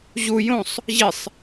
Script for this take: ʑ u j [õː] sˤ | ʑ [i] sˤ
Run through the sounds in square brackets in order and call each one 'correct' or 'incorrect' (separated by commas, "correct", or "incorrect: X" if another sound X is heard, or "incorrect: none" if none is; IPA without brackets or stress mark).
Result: incorrect: õ, correct